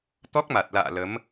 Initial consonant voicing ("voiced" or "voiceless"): voiceless